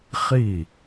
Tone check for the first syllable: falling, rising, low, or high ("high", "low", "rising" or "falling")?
falling